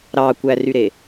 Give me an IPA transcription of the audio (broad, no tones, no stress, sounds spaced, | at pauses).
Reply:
ɾ ɑ kʷ æ r y ɾ e